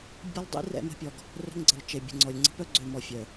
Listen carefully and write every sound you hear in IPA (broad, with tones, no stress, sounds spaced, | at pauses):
bʲ ə˦ lˠ dˤ ḭ˦ r ɛ̰˦ m ə̤˦ pʲ ɔ˨ ɡ | r ə̤˦ ŋ ɡ͡ǀ ə˨ lˠ t͡ʃ e˨ bʲ ə̤˨ ŋ͡ǀ ɔ˨ lʲ ŋ͡ǀ ə̤˦ p œ˦ ɡ͡ǀ ø˨ m ɔ˨ fʲ œ˨